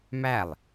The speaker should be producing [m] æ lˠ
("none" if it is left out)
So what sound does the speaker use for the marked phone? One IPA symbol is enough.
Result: m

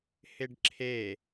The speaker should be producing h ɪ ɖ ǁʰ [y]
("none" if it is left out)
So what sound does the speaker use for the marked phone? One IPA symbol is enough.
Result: e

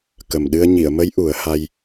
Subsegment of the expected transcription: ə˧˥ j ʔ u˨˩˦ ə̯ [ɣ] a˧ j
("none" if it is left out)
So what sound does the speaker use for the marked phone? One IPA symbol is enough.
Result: h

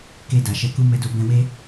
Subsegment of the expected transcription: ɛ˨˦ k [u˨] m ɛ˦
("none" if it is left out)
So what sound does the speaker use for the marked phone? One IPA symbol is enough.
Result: u˦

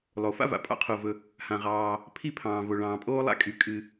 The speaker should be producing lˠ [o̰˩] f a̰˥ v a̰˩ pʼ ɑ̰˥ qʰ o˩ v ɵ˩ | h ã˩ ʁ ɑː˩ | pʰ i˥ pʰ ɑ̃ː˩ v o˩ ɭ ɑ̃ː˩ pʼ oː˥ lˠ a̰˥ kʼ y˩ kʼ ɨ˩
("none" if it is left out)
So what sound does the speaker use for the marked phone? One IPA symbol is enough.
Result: o˩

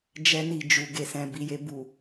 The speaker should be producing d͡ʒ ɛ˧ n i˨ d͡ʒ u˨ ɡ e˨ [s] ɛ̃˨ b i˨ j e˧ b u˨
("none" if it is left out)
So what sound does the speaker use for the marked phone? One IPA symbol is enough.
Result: s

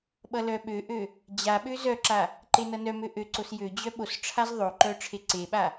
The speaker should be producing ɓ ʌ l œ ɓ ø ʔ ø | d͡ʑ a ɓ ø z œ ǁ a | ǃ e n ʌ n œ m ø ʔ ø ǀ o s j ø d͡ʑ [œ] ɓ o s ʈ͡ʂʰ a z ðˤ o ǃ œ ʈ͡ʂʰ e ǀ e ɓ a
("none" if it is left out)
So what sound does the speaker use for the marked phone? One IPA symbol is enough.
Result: œ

